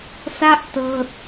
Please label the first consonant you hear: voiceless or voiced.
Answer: voiceless